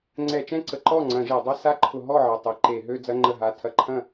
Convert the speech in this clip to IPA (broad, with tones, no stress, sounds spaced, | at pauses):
ŋ͡ǀ ɛ˧˩˧ t͡ʃ ɛ̃˥˩ ǀ ə˧˩˧ ǃ ɔ˥˩ ŋ͡ǀ ɐ̃˧˩˧ ʒ e˧˩˧ dˤ a˥˧ s a˥˧ ǃʰ ʊ˧˩˧ ɦ ɔ˥˩ ʕ ɐ˩˧˩ tˤ e˩˧˩ ǃ e˧˩˧ ɦ ø˥˧ d͡z ɐ˧˥˧ ŋ͡ǃ ə˥˩ ɦ a˧˥˧ tʰ ɐ˥˩ ǃʰ ɐ̃˥˩